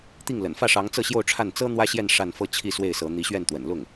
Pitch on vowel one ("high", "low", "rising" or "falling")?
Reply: falling